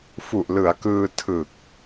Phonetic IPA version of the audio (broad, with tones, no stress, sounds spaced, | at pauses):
f u˨˩ ʔ l ɯ˩˦ a̯ k ɯː˧ tʰ ɯ˨˩ k̚